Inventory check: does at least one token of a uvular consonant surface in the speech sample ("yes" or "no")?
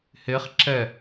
yes